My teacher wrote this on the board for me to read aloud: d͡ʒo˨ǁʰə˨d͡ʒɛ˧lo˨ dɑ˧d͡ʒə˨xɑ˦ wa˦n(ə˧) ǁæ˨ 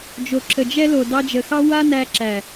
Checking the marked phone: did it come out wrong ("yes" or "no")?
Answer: yes